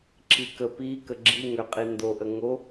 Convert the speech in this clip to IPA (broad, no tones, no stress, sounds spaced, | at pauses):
ǁ i k ə p i k ə ɡ͡ǁ i ŋ ø qʼ i n d o ʔ ə ŋ o